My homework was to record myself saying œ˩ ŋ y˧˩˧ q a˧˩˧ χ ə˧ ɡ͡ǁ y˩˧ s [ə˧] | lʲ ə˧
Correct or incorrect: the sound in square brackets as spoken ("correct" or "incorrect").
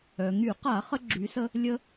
correct